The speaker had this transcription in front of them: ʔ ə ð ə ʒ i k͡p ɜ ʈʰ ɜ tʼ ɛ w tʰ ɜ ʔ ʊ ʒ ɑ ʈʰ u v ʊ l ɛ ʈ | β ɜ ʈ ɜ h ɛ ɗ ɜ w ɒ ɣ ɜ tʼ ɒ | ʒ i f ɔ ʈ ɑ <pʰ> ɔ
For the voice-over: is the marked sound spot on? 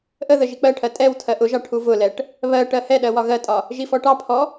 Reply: yes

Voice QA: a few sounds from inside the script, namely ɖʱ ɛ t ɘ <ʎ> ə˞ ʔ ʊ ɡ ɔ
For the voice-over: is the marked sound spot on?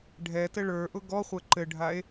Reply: no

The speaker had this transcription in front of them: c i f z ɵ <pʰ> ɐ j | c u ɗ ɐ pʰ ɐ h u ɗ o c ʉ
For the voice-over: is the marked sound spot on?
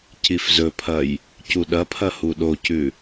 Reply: yes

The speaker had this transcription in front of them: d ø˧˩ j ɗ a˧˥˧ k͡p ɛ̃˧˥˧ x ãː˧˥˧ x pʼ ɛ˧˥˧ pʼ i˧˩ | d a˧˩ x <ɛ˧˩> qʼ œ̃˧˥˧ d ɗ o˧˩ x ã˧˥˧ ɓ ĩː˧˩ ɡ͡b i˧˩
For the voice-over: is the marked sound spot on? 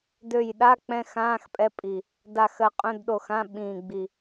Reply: no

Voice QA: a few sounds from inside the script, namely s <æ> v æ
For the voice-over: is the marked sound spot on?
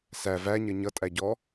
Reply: yes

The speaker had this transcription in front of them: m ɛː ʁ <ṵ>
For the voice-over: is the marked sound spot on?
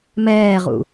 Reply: yes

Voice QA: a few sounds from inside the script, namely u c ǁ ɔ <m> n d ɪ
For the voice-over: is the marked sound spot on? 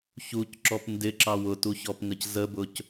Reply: no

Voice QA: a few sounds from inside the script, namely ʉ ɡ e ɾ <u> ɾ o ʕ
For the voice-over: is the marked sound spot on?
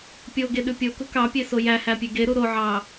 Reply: yes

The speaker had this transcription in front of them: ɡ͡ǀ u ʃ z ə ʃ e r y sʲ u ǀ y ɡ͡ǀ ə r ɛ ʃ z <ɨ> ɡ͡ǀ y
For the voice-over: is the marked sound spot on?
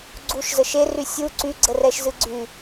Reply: yes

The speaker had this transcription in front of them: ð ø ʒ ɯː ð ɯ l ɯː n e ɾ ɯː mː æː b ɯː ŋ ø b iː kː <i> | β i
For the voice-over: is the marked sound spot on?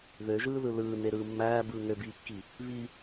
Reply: yes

